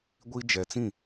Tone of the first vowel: high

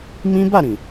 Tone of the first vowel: high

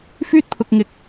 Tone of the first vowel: high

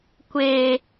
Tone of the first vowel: high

